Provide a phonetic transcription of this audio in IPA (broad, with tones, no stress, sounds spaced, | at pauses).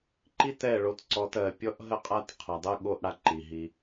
ǃ i˦ t ɛ˦˨ ɭ o˧ t ǀ ɔ˧ t ɜ˨ pʲ ɔ˦ ʔ ɦ ə˦ qʼ a˦ t qʰ a˨ dˤ ɜ˦ ɠ o˦ ʔ ɽ a˧ ǃ i˨ ɦ i˧